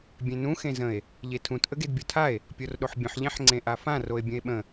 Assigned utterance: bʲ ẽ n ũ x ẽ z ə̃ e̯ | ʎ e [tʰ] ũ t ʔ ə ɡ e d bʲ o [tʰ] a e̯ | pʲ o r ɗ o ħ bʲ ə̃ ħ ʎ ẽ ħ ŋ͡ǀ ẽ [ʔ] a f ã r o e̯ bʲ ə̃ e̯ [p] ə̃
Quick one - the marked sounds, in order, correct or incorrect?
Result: correct, correct, correct, incorrect: ɓ

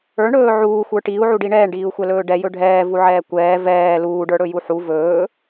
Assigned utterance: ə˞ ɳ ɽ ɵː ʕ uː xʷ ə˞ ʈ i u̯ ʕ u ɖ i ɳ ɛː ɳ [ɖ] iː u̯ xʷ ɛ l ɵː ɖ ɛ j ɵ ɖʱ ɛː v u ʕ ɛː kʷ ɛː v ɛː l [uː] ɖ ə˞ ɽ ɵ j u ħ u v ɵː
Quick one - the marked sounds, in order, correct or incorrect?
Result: correct, correct

